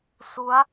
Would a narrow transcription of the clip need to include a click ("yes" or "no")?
no